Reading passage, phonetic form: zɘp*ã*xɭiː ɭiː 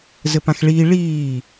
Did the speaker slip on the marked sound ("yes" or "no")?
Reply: no